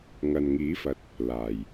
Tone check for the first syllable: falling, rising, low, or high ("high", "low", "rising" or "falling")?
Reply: low